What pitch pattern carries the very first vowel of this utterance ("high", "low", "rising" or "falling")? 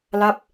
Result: falling